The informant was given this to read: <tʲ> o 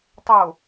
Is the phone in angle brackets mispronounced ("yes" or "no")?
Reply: yes